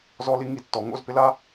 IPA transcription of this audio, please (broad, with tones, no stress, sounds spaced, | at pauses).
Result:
z ɔ˦˥ l i˦˥ ŋ i˧˥˧ tː ɔ˩˧ ŋ o̰˧˥˧ z p ɪ˦˥ l a˦˥